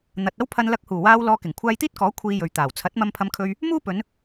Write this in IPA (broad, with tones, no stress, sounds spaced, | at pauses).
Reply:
n̪ ɐ˨ t̚ ɐ˥ w pʰ ɐ˧ n l ɐ˧ k̚ h uː˨˩ w aː˧ w l ɔː˧ k ɪ˨˩ ŋ kʷʰ aː˧ j t̪ iː˥ t̚ k ɔː˨˥ kʷʰ iː˧ j ɵ˨ ɥ t̪ aː˨˩ w t͡sʰ ɐ˨˥ t̚ m ɐ˧ m pʰ ɐ˧ m kʰ ɵ˧ ɥ | m uː˥ p ɵ˨˧ n